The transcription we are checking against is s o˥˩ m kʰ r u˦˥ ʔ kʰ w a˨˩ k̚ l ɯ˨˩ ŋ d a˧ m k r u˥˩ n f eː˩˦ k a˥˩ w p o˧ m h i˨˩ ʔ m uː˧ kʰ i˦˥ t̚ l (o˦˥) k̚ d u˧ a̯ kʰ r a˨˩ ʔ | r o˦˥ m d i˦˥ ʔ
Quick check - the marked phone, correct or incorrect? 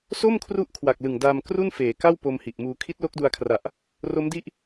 correct